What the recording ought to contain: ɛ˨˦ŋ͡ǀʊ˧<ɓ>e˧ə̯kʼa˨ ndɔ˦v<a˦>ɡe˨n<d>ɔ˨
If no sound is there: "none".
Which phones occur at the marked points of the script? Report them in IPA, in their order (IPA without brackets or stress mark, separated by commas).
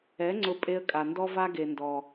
pʼ, a˦, d